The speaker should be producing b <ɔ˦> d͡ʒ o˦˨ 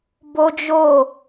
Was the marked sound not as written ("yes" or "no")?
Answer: yes